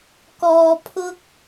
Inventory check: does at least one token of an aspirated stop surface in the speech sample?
yes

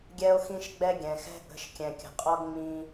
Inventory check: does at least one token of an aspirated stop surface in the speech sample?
no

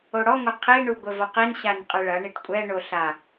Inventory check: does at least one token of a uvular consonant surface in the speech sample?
yes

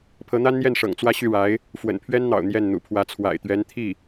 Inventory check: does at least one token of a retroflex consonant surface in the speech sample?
yes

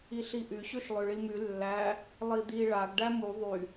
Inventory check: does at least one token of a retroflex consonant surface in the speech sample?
yes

